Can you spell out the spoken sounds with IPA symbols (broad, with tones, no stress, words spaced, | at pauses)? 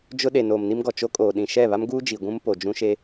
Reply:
d͡ʒʊ˦ɗe˨ noː˨mni˦mɡɔ˨ t͡ʃo˦kʼoː˨ ɗĩ˨ ʃɛ˦˨βa˦mɡuː˦ d͡ʒi˨ɡʷũ˦m po˨d͡ʒũ˦ʃe˦